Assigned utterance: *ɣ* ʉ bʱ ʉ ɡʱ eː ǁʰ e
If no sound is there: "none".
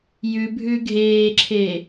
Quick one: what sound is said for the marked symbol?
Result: j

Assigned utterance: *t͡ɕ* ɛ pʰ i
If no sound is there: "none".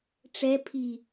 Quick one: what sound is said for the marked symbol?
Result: ʈ͡ʂ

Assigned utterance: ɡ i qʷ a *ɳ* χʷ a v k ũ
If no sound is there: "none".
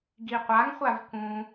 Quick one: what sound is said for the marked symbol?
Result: ŋ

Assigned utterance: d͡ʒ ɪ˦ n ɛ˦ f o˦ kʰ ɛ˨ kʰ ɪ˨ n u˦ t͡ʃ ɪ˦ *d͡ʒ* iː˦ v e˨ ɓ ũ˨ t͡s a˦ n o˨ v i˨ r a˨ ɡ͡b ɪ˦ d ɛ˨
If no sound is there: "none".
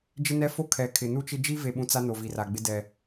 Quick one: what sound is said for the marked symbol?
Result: d͡ʒ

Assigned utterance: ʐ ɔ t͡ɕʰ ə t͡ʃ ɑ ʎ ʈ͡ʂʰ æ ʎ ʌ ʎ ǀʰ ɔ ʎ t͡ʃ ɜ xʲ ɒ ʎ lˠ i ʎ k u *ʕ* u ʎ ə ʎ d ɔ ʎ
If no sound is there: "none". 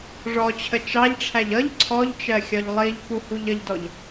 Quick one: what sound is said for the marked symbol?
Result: h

